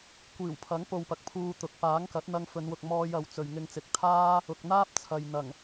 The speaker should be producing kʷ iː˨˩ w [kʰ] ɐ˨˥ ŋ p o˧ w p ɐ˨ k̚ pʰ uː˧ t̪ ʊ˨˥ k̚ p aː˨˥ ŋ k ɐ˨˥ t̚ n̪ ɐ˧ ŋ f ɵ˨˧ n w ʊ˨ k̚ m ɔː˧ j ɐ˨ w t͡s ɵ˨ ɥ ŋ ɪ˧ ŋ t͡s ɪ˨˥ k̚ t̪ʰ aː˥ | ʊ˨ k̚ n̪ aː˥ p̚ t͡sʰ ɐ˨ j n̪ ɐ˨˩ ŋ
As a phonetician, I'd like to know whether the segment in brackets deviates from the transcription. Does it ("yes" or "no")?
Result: yes